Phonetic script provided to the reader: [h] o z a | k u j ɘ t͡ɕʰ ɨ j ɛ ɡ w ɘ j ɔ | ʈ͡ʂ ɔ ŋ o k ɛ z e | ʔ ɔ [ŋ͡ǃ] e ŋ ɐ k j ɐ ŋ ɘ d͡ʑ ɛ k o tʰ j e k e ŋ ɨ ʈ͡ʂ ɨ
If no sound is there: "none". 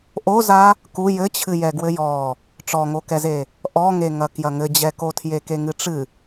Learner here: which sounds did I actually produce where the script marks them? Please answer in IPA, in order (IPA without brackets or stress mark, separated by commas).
ʔ, ŋ